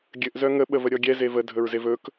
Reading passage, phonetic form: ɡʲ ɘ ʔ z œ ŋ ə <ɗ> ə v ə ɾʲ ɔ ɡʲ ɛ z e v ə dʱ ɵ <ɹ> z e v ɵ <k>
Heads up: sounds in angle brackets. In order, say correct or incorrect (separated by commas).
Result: incorrect, correct, correct